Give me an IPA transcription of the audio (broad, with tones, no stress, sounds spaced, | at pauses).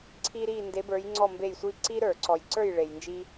ǀʰ i˧ ɾ i˧˩ n d e˩˧ b ə˞˩˧ j ŋ͡ǀ ɔ˧˩ m b e˧˩ j sʷ i˧ ǀ i˧ ɾ ə˞˧˩˧ ǀ ɔ˩ j ǀ ə˞˧˩ j ɭ e˩ j n d͡ʒ i˧